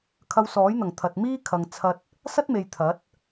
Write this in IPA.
kʰ ɐ˧ w s ɔː˨˥ j n̪ ɐ˨˩ ŋ t̪ʰ ɐ˨ t̚ m iː˥ kʰ ɐ˨ ŋ t͡sʰ ɐ˧ t̚ | s ɐ˥ t̚ m e˨ j t̪ʰ ɐ˨˥ t̚

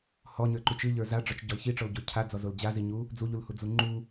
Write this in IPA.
h ɔ ɲ ə˞ ǃ y t͡ʃ ɨ ʎ ə˞ z a ɖ͡ʐ ɔ t͡ʃ ɟ ɔ l ç i ʈ͡ʂ ɔ l ɟ o cʰ a d͡z ɔ z o l d͡ʑ a z i ɲ u | d͡z u ʎ u l h u d͡z u ŋ͡ǃ u

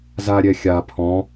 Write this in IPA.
z a ɾʲ ɛ xʲ a pʰ ɔ̃

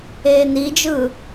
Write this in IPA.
eː n i d͡ʒ ɯː

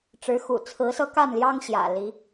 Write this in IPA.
ʈ͡ʂ ɻ̩˨˦ x ṵ˨˩ t͡sʰ ɹ̩˨˦ s ɤ˦ k a˥˨ n l j ɑ˦ ŋ ɕ j ä̰˨˩ l i˨˦

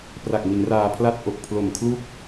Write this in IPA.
p r a˨˩ k̚ m i˩˦ n r aː˧ pʰ l a˥˩ t̚ ʔ o˨˩ k̚ pʰ l o˨˩ m kʰ l u˥˩ k̚

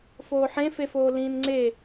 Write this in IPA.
f oː ħ ẽ f e f oː l ĩː n ŋ͡ǀ e

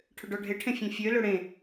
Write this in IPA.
ʈʰ ʏ ɖ ɔ ɖʱ e ʈʰ ẽ fʲ ẽ fʲ ø l ø ɽ ẽ

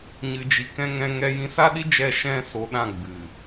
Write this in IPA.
ɲ ɨ˨ d͡ʒ i˨ k ɛ̃˧ ŋ ɛ̃˧ ŋ ɛ˧ j ĩ˧ s a˦ ɗ i˦ d͡ʒ ɛ˦˨ ʃ ɛ̃˦ s o˧ ɗ ã˦˨ ɡ͡b ɨ˨

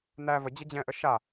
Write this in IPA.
n æ v ə d͡ʑ ə d͡ʑ ɛ̃ ʔ ə ʃ a

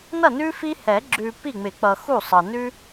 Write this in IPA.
n ʌ˥˩ n ʉ˦ f i˦ h ɛ˨˩˦ ɡ͡ǁ ʉ˨ p i˥˩ ŋ͡m ɪ˨˩˦ k͡p ʌ˨ x u˥˩ sˤ ɤ˨ n ʉ˦

